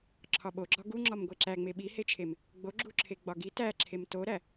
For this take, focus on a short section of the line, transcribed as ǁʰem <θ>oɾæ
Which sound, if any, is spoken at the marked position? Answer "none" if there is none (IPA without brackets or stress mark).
t